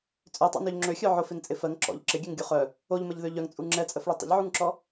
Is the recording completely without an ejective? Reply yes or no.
no